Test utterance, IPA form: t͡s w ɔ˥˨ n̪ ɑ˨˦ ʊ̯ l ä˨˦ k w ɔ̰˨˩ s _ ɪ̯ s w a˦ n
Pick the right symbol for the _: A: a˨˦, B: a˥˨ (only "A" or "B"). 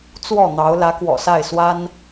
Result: B